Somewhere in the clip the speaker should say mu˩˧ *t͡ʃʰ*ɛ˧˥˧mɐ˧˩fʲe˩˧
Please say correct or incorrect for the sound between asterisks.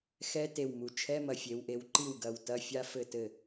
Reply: correct